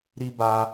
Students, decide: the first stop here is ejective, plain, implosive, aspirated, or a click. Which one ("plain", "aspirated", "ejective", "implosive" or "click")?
plain